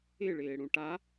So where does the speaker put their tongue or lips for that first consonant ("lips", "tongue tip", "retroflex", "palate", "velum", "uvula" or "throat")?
retroflex